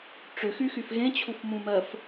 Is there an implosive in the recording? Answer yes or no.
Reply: no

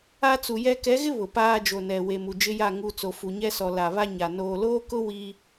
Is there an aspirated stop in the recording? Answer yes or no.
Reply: no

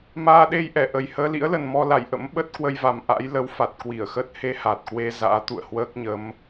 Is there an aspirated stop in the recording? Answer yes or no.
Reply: no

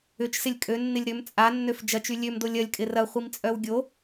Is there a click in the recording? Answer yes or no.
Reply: no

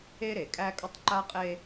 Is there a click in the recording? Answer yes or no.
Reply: yes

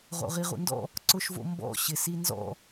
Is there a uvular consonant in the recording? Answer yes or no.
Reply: yes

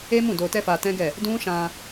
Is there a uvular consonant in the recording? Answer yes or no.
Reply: no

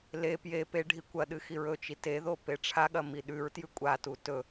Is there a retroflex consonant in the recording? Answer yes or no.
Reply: yes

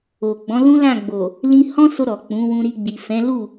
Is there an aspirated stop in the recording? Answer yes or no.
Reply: no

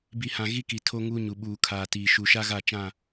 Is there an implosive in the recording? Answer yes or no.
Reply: yes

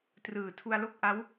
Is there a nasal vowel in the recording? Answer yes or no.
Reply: no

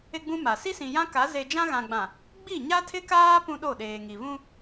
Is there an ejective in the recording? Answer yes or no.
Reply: no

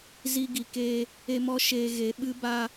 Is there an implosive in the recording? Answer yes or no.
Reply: yes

